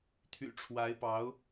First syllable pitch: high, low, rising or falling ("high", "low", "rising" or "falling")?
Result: low